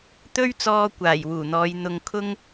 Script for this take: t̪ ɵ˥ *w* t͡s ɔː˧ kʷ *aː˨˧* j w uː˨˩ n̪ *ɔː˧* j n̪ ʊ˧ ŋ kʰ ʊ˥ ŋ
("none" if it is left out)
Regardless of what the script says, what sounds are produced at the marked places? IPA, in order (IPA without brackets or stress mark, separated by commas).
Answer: ɥ, aː˨˩, ɔː˨˧